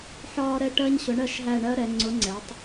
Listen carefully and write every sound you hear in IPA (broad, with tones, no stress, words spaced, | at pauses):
ħɒː˦ɾɛ˦ʈɜ˦ɲ ɕʊ˨˥ɳɜ˦˨ʃɦæ˦˨ ɳɜ˦ɾɛ˩˧ŋ͡ǀʊ˨˥ŋ͡ǀɛ˩˧tˤ